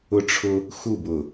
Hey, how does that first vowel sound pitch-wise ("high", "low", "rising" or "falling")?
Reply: high